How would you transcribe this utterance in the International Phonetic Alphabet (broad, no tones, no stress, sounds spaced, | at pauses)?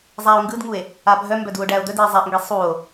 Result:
zˤ æ o̯ ŋ ɡ ɯ d ŋ u e̯ | a bʱ œ m b œ d u o̯ ɖ æ o̯ d̪ œ d i e̯ zˤ æ ʔ ŋ ɡ i sˤ u o̯